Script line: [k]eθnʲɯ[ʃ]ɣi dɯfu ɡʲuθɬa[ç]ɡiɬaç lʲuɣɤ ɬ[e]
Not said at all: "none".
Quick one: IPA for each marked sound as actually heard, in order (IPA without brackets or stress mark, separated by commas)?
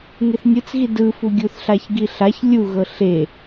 ŋ, t͡s, ç, e